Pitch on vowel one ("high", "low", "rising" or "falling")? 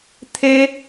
high